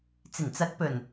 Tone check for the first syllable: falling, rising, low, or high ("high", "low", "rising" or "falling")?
low